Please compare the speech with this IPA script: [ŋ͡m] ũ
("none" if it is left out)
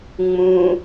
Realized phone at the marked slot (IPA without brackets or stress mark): ŋ͡m